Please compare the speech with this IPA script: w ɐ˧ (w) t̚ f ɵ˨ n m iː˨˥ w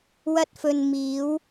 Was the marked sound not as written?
yes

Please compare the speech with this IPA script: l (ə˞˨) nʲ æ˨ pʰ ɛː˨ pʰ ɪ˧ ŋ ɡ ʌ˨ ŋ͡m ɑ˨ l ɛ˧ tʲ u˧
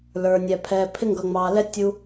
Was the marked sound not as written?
no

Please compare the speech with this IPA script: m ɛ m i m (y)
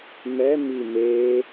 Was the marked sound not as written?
yes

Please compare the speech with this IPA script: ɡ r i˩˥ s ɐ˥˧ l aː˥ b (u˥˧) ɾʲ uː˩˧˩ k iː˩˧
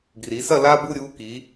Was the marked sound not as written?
no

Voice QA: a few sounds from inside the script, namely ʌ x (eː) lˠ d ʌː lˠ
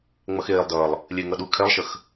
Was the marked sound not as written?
no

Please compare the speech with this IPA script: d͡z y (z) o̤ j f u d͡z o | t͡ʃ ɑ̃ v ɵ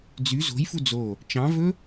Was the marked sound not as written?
no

